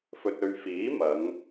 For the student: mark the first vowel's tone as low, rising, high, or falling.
low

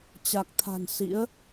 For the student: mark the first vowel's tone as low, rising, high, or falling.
low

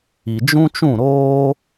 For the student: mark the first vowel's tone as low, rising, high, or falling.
low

